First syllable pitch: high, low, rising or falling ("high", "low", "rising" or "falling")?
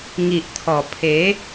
low